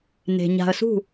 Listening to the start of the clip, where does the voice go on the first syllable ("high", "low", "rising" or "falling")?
low